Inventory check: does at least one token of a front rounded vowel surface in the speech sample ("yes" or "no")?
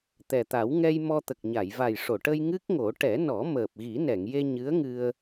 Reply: no